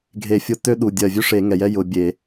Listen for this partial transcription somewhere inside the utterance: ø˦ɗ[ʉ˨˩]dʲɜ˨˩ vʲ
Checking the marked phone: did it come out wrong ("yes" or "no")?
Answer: yes